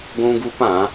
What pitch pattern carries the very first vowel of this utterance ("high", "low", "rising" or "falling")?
high